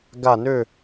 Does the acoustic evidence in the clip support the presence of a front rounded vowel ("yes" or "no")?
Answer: yes